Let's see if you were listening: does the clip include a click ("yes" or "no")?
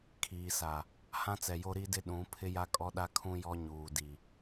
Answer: no